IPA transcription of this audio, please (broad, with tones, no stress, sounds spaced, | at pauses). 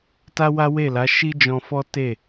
t a˦ w a˦ w e˦˨ l a˨˦ ʃ i˦ d͡ʒ ɔ̃˧ f ɔ˦ t e˦˨